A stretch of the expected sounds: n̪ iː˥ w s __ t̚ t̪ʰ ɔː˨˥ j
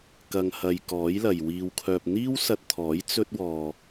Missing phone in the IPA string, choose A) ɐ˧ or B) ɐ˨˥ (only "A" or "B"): A